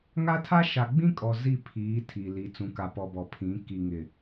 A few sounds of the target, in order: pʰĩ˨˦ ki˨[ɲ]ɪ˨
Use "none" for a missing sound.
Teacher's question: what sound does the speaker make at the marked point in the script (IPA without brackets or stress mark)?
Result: ŋ